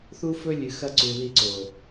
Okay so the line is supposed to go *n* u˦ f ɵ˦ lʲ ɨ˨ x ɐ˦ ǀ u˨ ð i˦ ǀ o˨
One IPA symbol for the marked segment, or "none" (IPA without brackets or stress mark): θ